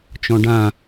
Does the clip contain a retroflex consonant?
yes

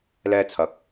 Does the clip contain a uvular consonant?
no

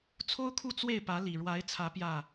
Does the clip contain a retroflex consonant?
yes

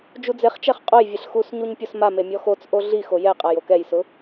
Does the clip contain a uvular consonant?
yes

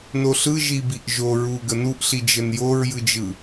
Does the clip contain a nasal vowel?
no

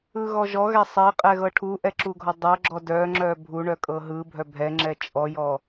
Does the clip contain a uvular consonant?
yes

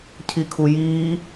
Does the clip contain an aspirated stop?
yes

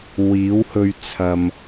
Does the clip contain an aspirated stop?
yes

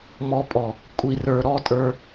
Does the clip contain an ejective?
yes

